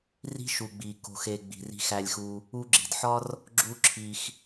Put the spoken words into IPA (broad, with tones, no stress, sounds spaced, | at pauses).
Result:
r i̤˦ ʃ u˨ ɡ͡b i˨ k o̤˨ x e˨ ɡ͡b i̤˨ r i̤˧ x æ˧ lʲ x u˧ | u˧ ɡ͡ǁ i̤˨ d ħ ɒ˦ r | ɡ͡ǁ u˦ ǁʰ i˧ x